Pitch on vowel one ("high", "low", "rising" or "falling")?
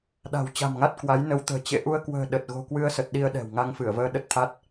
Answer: low